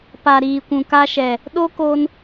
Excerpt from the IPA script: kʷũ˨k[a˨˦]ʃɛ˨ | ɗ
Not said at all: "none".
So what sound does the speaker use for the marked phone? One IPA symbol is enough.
a˧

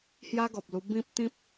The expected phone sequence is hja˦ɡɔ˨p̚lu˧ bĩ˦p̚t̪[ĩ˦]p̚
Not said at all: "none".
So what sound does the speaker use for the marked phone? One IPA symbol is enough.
ĩ˦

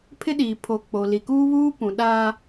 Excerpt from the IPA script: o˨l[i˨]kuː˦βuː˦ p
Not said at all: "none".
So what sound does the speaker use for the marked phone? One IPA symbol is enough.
i˨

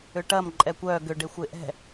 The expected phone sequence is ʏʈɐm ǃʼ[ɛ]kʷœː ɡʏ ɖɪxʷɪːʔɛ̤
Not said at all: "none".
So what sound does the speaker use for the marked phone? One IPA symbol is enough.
ɛ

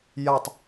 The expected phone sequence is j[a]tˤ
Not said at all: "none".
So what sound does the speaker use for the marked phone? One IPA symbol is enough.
a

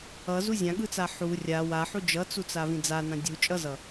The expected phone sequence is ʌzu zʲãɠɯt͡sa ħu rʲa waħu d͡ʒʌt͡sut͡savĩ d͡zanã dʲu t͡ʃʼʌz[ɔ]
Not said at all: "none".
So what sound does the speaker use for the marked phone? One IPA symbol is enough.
ʌ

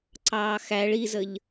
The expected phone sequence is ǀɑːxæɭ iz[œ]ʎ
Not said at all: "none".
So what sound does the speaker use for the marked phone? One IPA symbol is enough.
ə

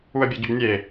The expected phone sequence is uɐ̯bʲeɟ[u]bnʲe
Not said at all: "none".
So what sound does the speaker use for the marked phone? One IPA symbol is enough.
ʏ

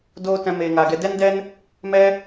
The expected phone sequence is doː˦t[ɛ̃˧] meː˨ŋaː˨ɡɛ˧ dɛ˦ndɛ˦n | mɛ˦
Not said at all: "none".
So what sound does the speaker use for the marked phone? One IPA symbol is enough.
ɛ̃˧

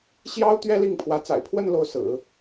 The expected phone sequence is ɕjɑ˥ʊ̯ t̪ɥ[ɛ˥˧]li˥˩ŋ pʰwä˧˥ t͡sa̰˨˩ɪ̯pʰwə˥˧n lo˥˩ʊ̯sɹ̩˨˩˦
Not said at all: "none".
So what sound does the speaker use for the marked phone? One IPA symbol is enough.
ɛ˥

